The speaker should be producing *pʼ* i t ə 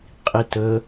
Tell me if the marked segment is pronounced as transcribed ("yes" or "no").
no